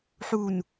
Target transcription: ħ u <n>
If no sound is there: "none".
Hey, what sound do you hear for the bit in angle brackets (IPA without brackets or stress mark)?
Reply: n